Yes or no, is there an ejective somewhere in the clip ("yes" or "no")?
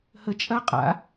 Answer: yes